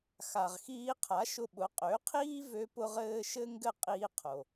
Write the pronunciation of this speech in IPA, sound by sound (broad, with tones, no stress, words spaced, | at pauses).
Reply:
xa˩ʁxiː˧qʰa˩˥ ʃʊ˧ɓʊ˩˥ qʼø˩˥qʰiː˥ vø˥pʊ˥ʁɘː˥ ʃɘ˥ ŋɡɘ˥˩qʼiː˧ qʰo˩